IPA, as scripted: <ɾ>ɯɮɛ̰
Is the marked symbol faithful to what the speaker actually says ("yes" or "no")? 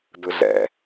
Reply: no